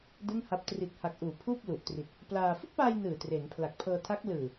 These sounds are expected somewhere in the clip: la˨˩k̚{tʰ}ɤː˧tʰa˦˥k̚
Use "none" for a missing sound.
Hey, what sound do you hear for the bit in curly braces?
pʰ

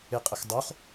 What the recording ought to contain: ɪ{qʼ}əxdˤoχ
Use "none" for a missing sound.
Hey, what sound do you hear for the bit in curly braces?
qʼ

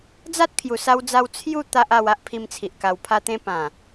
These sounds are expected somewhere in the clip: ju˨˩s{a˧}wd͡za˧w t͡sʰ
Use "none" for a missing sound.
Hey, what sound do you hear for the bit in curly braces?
a˧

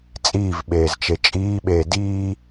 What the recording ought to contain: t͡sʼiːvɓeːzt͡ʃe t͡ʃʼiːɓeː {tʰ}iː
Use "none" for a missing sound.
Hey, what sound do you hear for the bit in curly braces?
d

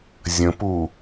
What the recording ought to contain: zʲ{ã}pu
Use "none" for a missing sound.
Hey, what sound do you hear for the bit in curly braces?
ə̃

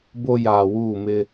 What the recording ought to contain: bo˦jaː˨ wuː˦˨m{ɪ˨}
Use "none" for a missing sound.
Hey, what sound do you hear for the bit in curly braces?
ɪ˦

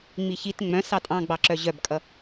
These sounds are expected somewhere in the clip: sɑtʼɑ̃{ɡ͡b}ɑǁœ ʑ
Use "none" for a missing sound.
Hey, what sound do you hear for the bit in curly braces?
ɡ͡b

